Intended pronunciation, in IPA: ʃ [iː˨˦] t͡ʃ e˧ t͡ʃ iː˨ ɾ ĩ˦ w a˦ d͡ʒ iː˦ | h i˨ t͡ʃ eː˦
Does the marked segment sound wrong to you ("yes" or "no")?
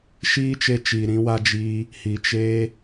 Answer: yes